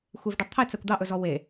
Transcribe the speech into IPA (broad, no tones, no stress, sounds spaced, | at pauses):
xʷ e v ɖ ɛ tˤ t̪ʰ ɛ t͡s æ kʷ d̪ ɑ ʔ ɵ z ɔ w e